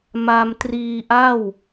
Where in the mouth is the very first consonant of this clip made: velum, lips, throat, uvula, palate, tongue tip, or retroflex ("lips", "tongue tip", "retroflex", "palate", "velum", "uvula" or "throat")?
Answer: lips